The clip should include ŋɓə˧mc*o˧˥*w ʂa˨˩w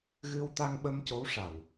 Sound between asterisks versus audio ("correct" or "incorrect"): correct